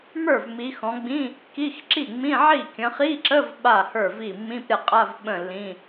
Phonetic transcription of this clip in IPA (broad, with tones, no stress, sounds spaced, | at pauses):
m ə˞˥˩ v m i˨˦ x ɔ̃˨˦ ɡ͡b ĩ˧˥˧ | k i˧˥˧ x ǁ i˥˩ ŋ͡m ĩ˧˥˧ ʕ i˥˩ kʲ ə̃˨˦ χ i˧˥˧ ǁ ə˧˥˧ v ɓ a˥˩ h ə˞˥˩ v i˥˩ mː ĩ˧˥˧ p ɾʲ a˥˩ qʼ a˧˥˧ v ɓ ə̃˥˩ lː ĩ˧˥˧